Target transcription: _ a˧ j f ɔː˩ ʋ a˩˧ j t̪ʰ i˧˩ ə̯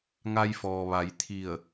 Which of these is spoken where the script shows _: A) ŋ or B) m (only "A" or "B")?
A